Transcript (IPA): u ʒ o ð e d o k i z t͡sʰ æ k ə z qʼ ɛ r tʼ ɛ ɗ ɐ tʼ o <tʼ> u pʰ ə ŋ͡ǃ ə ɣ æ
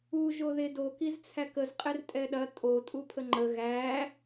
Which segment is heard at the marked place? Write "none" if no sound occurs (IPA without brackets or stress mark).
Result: tʼ